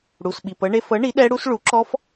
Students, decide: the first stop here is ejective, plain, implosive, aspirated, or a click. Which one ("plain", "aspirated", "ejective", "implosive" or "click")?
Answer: implosive